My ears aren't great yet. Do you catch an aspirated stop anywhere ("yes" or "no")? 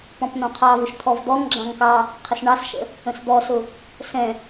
yes